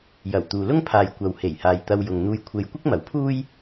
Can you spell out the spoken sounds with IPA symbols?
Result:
jɐ˨˩w t̪uː˨lʊ˥ŋpʰaː˨j kʷɐ˨w he˨˩jhaː˨j t̪ɐ˧w jʊ˨ŋn̪uː˧j kʷʰe˧j kʷɪ˥k̚mɐ˨˥wpʰuː˥j

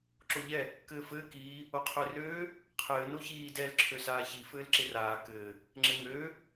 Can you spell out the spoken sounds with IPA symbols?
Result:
ǁoʎɛ | kɘːfɘː kiː | oqʰørøː | qʰɘː noçiː dɛl ǁʰøsaːçi fɘːlǁɪraː kɘː | ŋ͡ǁɘŋøː

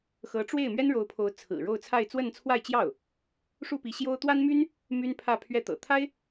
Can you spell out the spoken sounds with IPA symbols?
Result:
xɤ˧˥ʈ͡ʂwe˥˩ɪ̯ mɥɛ˥nɻo˧˥ʊ̯pʰo˧˥ʊ̯ t͡sʰɹ̩˨˩ ɻo˥˧ʊ̯t͡sʰa˥˧ɪ̯ t͡swə˥˧nt͡sʰwa˥˧ɪ̯t͡ɕjɑ˥˩ʊ̯ | ʂu˥˩pi˧˥ɕjo˥ʊ̯ t̪wa˥nmy˥n | my˥npʰä˥˧ pʰɥɛ˥˩ t̪ɤ̰˨˩t̪ʰa˥ɪ̯

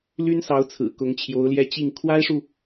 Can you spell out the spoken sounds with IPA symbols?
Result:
ly˥nsɑ˧˥ʊ̯ t͡sʰɹ̩˨˩kʊ˧˥ŋt͡ɕʰjo˧˥ʊ̯ljɛ˥˧ t͡ɕi˥˩ŋ kʰwa˥ɪ̯ʂu˨

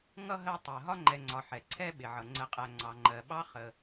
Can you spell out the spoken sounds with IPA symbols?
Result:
ŋʌ˥ɦɜ˦ tˤɜ˩ɦɒ˥ŋ͡ǃɛ˨ ŋ͡ǀɒ˨ħɛ˩ ǀʰɛ˥ ɓɪ˩ʕʌ˩ŋ͡ǀə˨qʼæ˨ ŋ͡ǀɑ˨ŋ͡ǃɜ˨ ɓɑ˥χə˨

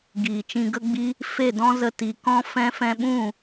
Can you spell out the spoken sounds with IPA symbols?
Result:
ɡiː˨t͡ʃĩ˧ɡə˦ɡ͡bi˦ | fe˦˨dɔ̃˦zə˧ ti˨kɔ̃˦ fɛ̃˧fɛ̃˧ɓũ˦˨

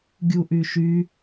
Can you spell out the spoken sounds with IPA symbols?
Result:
ɡʲuʔyʃy

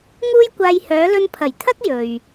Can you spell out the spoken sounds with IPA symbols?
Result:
ŋuː˥jkʷaː˧j hœː˨˧lɵ˧npʰɐ˨˩jt̪ʰɐ˥k̚ jɵ˨ɥ

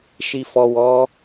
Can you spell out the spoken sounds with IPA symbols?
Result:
ʃi˨fɔ˨ wɔ˨˦

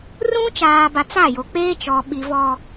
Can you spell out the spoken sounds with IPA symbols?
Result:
rũ˦ t͡ʃaː˨ba˨ t͡sa˦˨jo˨k͡peː˦ t͡ʃɔ˨ ɓi˨vɔ˨

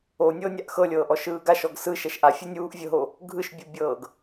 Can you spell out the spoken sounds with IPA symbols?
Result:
onʲɤː nʲaʔxɤlʲɤːʔ ɔʃɯːɡaʃɔɡ sɯ ʃɛʃʔa fʲunʲuːʔvʲɤɦo | ɡʱɯʃbʲubʲɤːɡ

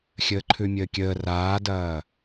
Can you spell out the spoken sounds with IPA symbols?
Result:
xʲəːǃʰʉmʲəːkʲəː raːdɐː

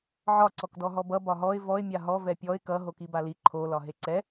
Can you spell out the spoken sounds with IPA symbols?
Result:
ʕɒ ǀɔkdɔɦɔbʌ bɒɦɔɪ̯ vɔɪ̯ mʲaɦɔ vɛpʲɔɪ̯ kʌ ɦokibali ǃʰo lɒɦeǀɛ

